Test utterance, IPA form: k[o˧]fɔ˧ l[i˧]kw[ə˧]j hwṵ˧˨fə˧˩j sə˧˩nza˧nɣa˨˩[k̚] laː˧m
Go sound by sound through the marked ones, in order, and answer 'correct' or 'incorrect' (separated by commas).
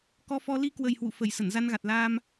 incorrect, correct, incorrect, incorrect